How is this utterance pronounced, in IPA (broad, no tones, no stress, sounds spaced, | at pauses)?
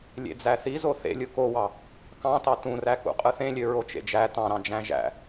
lʲ ḛ d͡z æ θ i z o θ ḛ lʲ ɯ k o w ɑ | k ɑ̃ t ɑ t ũ r æ k ṵ qʼ ɯ θ ẽ lʲ ø ɹ o t͡ʃ ḛ d͡ʒ æ t ɑ̃ ɾ ɑ̃ d͡ʒ æ̃ ʒ æ̰